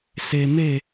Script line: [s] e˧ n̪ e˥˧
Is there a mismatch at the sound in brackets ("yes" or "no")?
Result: no